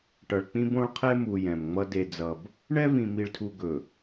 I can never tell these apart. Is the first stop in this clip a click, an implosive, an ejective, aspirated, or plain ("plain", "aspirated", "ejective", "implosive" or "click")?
plain